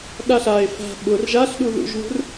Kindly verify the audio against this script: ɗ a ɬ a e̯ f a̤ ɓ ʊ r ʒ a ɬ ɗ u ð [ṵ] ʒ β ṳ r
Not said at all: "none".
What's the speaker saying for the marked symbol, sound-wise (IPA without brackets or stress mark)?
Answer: ṵ